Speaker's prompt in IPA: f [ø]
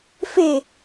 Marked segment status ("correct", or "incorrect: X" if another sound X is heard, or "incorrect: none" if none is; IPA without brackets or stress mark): incorrect: e